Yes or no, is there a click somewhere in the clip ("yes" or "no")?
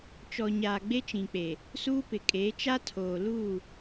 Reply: no